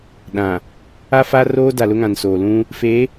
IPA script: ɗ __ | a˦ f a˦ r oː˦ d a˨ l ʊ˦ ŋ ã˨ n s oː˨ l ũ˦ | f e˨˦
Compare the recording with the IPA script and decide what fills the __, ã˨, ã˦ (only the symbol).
ã˨